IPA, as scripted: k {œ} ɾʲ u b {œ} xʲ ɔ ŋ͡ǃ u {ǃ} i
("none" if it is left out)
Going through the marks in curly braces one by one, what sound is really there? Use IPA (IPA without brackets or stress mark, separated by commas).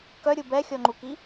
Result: œ, ɛ, k